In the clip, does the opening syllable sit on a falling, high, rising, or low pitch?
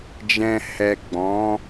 low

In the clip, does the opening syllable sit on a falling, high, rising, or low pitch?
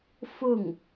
falling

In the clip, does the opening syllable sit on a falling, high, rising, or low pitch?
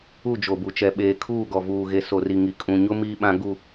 falling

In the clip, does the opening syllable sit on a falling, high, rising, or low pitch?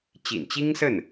low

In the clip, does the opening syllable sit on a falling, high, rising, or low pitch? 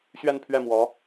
falling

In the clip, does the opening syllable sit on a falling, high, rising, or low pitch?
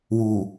low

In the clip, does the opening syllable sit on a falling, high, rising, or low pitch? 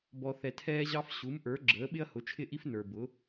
low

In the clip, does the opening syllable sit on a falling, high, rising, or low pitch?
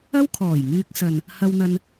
high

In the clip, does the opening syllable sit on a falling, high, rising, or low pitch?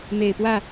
low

